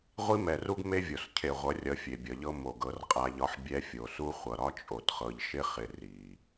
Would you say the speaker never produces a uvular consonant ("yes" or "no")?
no